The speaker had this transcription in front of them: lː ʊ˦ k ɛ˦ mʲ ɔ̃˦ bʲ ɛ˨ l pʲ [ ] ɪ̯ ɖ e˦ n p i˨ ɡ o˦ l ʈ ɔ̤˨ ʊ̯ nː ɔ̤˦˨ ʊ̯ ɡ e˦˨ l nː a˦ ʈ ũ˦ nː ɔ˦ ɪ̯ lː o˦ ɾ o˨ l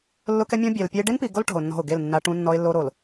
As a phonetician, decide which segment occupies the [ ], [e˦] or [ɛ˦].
ɛ˦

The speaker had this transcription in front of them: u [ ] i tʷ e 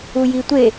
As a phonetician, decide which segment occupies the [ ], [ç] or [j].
j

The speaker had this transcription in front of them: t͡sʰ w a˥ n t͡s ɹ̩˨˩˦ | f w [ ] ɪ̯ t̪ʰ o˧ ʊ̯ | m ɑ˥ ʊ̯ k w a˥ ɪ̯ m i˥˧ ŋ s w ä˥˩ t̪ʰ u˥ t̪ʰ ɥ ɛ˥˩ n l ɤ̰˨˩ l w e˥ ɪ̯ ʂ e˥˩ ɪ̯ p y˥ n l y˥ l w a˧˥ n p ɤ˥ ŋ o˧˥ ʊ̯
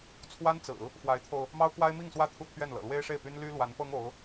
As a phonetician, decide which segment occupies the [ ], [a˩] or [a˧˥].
a˧˥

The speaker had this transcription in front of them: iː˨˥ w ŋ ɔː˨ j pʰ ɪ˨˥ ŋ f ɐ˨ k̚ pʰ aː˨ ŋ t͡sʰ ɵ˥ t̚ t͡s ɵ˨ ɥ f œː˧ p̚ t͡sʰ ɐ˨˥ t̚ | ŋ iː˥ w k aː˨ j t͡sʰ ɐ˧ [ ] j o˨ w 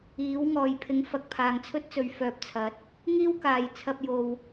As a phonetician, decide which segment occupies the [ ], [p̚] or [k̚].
p̚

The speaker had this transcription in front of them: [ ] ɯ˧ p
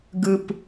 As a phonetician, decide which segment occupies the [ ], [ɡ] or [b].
ɡ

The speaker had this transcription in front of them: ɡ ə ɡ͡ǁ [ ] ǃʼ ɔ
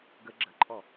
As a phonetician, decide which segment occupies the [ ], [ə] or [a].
ə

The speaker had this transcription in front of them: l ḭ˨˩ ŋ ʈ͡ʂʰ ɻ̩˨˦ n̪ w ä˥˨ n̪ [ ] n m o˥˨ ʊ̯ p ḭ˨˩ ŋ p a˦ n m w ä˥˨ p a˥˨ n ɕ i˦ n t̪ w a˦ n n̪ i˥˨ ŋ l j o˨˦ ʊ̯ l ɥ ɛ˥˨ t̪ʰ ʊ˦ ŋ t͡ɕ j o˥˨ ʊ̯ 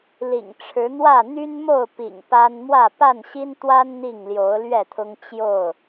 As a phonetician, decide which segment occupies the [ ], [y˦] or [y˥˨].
y˦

